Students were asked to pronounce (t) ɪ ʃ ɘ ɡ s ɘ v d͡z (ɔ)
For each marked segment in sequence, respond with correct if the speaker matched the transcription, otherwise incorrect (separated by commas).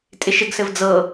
incorrect, incorrect